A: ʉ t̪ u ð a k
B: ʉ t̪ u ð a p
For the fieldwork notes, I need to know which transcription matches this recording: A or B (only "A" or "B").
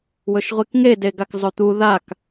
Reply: A